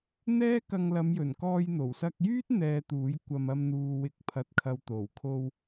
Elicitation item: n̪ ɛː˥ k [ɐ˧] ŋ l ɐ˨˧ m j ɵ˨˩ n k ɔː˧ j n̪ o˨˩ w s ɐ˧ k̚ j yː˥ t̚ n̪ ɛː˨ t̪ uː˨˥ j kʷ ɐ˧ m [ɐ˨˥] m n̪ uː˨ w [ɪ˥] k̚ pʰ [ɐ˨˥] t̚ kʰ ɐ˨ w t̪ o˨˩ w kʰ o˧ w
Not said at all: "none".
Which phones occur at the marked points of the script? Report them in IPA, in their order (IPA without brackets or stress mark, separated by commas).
ɐ˧, ɐ˧, ɪ˨˥, ɐ˨